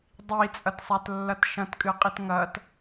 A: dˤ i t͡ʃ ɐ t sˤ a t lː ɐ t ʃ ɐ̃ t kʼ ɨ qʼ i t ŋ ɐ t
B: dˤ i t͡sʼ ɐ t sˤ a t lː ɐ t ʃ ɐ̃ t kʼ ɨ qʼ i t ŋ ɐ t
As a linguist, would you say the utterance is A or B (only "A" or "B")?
B